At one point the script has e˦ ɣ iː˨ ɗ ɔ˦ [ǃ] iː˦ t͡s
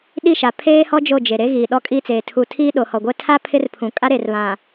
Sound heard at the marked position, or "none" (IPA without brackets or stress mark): kʼ